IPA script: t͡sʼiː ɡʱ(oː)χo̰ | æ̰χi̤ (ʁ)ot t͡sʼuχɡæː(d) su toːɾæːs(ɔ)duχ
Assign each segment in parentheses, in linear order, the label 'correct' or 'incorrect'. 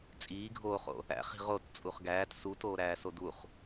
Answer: correct, correct, incorrect, incorrect

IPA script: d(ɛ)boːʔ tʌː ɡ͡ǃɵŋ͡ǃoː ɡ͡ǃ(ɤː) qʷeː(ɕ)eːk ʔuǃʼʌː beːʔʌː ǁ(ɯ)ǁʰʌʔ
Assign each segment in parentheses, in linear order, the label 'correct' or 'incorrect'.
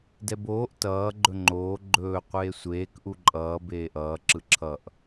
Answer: correct, incorrect, incorrect, correct

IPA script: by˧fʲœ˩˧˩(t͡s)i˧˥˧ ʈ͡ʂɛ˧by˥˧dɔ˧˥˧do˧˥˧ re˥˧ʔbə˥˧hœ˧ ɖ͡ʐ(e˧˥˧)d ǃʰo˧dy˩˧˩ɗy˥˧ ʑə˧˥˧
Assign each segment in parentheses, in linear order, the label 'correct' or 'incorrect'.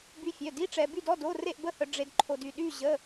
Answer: incorrect, incorrect

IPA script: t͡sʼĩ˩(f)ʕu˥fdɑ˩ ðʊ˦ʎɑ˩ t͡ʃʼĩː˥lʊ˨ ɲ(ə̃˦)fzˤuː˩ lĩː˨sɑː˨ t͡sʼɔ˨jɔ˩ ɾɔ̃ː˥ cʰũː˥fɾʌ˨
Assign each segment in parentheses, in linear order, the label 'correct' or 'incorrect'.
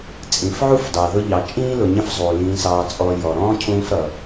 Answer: correct, correct

